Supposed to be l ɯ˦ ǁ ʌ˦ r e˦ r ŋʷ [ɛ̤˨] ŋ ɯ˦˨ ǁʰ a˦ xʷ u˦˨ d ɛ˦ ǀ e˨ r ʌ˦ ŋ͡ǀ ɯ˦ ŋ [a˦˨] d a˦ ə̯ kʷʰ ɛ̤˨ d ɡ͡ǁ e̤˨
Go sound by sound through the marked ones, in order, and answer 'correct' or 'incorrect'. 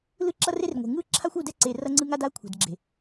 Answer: incorrect, incorrect

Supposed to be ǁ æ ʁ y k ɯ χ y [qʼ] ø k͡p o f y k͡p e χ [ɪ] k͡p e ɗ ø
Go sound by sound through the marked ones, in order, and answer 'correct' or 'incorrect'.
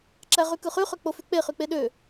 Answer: incorrect, incorrect

